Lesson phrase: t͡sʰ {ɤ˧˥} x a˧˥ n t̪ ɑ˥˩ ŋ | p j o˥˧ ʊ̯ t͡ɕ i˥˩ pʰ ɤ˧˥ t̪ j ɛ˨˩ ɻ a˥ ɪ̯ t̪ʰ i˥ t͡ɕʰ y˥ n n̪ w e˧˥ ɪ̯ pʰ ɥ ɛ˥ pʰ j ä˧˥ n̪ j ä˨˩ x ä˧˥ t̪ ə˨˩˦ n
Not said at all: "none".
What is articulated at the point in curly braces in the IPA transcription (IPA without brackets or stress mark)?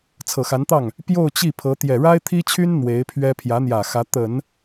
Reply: ɤ˨˩